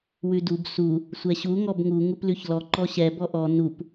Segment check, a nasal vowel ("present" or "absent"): absent